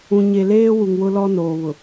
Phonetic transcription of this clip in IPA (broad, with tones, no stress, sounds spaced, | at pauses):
ũ˨ ɲ e˨ l eː˦ w u˨ ŋ w ʊ˦ l ɔ˦ n oː˨ β ʊ˨